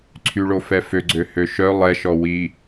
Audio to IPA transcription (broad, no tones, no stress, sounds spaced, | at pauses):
ǀʰ y ɭ o f ɛ f ø ɡ͡ǀ ø h ø ʃ œ lˠ ɛ ʃ ɔ w i